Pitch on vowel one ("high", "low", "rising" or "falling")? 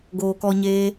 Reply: low